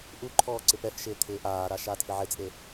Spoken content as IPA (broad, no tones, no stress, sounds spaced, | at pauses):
ʔ u ǃʰ ɔː ǀ ɪ p ɛ f ʃ ɪː t̪ʰ ɪː ʔ aː ɾ a ʃ aː t f ɪ ʕ ɪ t͡sʼ e